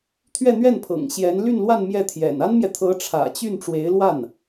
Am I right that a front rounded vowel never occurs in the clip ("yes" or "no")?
no